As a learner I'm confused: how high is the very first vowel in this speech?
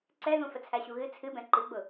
mid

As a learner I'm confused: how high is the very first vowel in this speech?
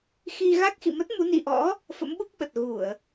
high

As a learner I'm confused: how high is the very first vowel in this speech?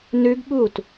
high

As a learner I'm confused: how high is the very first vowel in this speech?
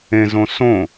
mid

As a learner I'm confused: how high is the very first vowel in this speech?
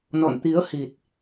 mid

